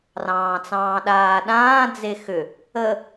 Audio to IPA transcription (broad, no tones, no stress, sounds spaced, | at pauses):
r ɑ̃ː t͡s ɑ̃ː ɗ aː ɗ ãː d͡z e x ʏ | ə